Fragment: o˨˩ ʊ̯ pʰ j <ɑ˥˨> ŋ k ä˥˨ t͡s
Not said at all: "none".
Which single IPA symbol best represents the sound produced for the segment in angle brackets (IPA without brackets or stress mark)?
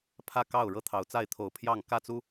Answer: ɑ˥˨